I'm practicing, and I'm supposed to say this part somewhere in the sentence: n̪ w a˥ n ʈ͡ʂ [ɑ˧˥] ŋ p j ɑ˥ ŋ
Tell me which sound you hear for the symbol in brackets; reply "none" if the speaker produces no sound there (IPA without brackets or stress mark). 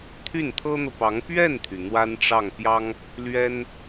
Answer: ɑ˥˩